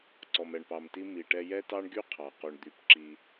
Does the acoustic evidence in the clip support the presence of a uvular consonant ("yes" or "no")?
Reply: yes